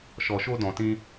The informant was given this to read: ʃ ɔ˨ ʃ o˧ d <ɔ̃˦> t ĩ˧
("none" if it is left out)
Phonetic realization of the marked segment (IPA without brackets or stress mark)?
ɔ̃˨